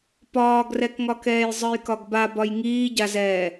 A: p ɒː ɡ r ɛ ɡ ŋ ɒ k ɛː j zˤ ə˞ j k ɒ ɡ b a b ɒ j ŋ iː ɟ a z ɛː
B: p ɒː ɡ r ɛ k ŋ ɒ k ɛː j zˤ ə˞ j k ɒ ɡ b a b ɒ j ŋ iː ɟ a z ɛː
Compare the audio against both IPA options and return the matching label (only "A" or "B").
B